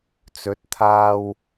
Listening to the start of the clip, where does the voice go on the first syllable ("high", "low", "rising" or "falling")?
rising